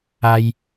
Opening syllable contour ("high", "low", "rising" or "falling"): high